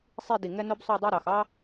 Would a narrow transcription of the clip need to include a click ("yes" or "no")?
no